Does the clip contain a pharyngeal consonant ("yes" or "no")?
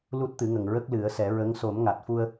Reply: no